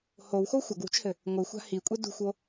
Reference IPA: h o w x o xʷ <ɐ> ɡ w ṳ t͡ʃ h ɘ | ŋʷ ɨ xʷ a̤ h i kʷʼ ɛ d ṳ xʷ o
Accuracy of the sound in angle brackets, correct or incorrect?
correct